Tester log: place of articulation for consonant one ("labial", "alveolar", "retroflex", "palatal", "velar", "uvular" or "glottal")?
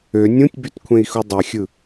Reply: alveolar